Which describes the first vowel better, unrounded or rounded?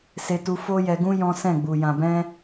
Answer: unrounded